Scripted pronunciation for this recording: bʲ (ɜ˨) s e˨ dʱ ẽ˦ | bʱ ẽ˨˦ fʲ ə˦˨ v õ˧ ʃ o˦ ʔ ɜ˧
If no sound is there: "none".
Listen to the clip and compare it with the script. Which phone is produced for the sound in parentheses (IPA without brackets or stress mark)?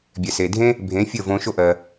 ɛ˨